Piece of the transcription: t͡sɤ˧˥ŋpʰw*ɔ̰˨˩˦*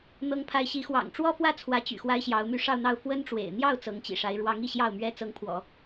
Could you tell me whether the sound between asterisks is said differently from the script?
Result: no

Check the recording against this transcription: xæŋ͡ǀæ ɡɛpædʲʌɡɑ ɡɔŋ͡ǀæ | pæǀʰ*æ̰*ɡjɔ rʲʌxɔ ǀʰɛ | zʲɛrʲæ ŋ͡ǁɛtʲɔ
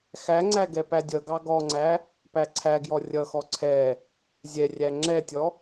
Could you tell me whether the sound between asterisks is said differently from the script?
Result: yes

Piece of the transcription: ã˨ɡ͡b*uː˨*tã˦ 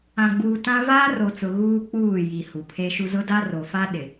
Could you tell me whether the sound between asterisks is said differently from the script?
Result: no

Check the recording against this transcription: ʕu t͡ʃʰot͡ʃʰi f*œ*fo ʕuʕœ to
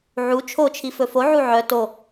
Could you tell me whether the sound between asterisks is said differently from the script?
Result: yes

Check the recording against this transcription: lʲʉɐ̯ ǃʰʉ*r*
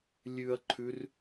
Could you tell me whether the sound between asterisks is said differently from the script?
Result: no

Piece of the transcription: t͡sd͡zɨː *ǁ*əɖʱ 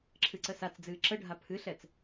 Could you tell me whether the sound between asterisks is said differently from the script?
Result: no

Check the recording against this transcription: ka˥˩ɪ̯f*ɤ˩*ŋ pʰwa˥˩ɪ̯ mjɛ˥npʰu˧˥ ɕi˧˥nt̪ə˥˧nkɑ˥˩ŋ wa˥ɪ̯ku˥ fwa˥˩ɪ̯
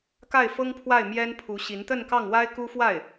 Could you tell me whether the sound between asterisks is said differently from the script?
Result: yes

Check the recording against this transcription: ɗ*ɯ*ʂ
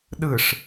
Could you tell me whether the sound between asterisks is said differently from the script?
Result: no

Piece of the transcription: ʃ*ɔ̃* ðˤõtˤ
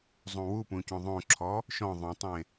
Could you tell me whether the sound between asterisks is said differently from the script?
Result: no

